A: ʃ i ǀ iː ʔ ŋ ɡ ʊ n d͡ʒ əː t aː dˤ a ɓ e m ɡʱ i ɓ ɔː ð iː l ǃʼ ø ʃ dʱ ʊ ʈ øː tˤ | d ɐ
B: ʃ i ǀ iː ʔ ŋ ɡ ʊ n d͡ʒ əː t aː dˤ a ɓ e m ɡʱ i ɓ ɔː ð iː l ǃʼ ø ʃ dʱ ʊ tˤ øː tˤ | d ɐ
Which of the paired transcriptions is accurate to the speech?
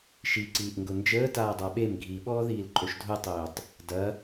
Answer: B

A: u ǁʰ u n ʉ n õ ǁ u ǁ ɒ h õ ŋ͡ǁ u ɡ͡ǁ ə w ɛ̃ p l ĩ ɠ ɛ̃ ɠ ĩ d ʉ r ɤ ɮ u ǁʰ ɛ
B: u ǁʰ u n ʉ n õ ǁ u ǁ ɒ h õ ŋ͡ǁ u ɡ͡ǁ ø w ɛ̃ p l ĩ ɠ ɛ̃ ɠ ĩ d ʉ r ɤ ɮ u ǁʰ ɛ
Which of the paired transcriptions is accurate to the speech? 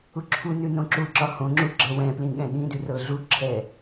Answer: A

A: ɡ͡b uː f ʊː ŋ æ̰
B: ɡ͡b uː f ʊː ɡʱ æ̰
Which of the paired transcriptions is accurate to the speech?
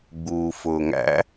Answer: A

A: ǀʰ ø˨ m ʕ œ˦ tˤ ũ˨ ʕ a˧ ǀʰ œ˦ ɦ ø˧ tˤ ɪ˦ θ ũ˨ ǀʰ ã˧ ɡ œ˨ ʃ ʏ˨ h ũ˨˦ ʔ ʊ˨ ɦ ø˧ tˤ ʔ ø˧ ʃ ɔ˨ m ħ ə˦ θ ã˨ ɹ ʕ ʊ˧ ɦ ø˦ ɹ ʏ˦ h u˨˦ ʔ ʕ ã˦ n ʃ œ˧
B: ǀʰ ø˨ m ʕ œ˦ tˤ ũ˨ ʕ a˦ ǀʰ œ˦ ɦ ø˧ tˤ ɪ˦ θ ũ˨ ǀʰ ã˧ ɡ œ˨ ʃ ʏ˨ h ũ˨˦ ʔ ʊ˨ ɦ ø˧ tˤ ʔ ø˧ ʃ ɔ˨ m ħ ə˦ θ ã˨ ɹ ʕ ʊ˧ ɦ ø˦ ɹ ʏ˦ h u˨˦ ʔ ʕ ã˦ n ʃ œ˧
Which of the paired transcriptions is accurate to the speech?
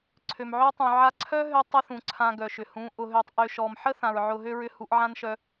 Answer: A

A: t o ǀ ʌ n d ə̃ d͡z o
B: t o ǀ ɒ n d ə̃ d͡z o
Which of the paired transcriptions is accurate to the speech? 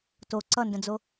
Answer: A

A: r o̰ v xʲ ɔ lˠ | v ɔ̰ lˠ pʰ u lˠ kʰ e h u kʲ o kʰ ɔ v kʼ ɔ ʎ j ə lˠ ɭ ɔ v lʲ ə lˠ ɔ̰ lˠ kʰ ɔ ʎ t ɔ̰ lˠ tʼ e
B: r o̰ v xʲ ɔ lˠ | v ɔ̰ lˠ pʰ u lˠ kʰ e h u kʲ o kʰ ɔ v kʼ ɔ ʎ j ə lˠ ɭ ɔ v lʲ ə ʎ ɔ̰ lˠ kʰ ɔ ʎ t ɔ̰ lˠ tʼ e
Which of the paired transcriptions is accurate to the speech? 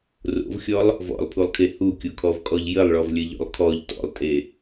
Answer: B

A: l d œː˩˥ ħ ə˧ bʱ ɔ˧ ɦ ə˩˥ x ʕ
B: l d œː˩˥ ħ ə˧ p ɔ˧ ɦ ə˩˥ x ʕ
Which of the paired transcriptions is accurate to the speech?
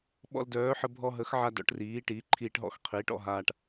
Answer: A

